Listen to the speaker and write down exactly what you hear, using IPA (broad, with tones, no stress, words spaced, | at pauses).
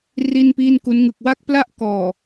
ri˥˩npiː˥˩nku˦˥n ŋɯ˨˩k̚wa˥˩k̚pla˥˩ʔ kɔː˨˩